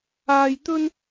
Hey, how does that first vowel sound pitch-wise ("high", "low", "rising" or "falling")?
low